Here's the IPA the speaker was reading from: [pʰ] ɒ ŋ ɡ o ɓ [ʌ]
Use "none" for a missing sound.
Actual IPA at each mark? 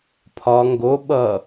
pʰ, ʌ

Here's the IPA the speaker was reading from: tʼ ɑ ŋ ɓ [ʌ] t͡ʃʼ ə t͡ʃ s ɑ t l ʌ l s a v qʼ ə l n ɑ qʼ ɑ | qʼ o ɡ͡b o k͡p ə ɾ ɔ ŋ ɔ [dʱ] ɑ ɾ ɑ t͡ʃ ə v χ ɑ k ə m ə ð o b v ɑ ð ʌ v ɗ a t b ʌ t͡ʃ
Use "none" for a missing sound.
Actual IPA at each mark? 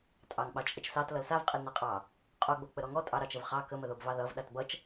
ɑ, tʼ

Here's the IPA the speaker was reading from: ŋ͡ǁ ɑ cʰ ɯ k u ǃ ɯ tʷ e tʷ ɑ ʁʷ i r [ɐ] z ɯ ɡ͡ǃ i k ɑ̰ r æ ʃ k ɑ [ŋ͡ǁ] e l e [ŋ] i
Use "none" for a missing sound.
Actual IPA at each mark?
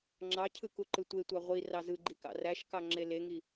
ɑ, ŋ͡ǁ, ŋ

